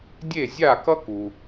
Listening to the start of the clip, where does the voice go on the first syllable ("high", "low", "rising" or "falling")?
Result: falling